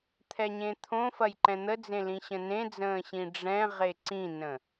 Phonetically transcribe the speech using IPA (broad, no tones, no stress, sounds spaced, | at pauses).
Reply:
t̪ʰ ɛ ɲ ẽ t̪ʰ õ f ɐ j ǃ ɛ̃ n̪ ə d͡z ẽ l ĩ ɕ ə̃ n ẽ d͡z ə̃ː ɕ ĩ ɖ͡ʐ ɛ̃ ʁ e ǀ ĩ n ə̃